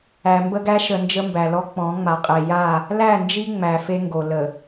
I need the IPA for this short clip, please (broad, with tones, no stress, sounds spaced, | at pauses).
æ˨ m b ə˦ ɡ æ˦ ʃ ə˨ n d͡ʒ ə˦ m b æ˨ l ɔ˦ k͡p ɔ̃˨˦ ŋ͡m a˨ qʼ e˨ j a˦˨ | l æ˦˨ n d͡ʒ i˦ ŋ͡m æ˨ f e˦ ŋ ɡ o˨ l ə˨